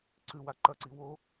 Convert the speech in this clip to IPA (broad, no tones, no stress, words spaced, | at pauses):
ǀʉwa ǃɐǀi wo